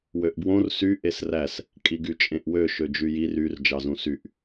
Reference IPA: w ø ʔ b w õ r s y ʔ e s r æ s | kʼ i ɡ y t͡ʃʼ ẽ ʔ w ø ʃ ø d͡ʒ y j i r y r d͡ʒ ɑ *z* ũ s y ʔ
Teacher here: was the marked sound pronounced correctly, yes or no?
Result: yes